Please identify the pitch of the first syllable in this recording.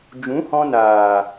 rising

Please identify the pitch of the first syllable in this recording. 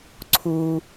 low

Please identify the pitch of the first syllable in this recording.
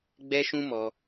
high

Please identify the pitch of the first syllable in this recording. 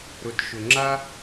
low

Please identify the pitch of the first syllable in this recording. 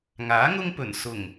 rising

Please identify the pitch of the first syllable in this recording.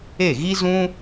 falling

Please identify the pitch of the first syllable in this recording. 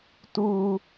high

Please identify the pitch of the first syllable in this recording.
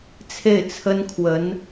falling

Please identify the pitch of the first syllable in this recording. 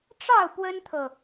falling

